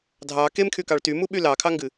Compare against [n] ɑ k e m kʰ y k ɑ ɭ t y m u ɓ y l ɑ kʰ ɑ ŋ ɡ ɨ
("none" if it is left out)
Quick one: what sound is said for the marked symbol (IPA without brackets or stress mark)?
dʱ